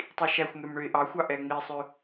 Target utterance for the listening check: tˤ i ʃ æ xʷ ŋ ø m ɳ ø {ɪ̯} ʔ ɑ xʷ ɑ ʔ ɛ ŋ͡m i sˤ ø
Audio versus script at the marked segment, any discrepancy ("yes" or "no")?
no